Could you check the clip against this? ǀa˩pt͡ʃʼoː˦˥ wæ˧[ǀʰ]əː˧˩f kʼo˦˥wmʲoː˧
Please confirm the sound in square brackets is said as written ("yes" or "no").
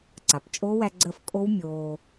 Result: no